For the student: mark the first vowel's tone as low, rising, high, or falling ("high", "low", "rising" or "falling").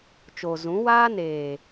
low